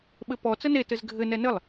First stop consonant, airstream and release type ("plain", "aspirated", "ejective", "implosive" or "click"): implosive